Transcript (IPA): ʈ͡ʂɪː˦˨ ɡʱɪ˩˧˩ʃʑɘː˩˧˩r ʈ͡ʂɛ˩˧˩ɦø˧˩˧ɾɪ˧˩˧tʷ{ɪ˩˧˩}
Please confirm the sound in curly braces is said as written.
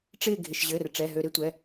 no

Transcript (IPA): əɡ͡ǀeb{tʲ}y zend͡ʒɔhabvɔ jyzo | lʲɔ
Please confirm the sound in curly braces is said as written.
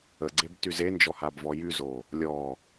no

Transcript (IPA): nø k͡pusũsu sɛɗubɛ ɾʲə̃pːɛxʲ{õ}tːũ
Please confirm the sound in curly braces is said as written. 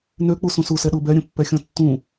no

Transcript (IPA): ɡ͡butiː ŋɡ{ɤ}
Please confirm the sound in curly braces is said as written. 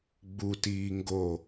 no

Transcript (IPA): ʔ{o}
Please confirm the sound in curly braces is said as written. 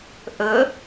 no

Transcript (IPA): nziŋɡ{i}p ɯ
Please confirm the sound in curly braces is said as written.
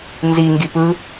yes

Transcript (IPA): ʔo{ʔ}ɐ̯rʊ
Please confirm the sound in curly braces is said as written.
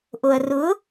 no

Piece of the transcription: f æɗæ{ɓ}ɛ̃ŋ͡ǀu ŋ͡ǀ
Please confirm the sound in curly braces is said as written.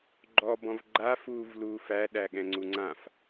no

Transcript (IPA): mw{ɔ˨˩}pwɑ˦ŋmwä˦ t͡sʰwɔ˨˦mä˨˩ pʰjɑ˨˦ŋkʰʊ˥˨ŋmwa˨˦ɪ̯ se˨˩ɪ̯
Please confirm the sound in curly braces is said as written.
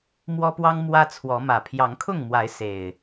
no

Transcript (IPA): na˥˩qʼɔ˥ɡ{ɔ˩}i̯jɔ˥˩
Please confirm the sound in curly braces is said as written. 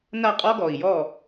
yes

